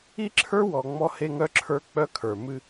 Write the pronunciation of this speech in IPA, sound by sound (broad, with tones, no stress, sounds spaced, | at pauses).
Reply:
i˦ ǁʰ ə˞˦ w ɔ˨ ŋ͡m ɔ˦ h e˦ ŋ œ˦ ǁʰ ə˞˦ k͡p œ˦ kʰ ə˞˨ m ɨ˦